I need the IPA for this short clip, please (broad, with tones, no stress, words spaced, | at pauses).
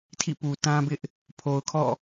tʰḭ˦˨pu˨ tã˦bɪ˦ʔ | pʰo˨ʊ̯kʰɔ̰˦˨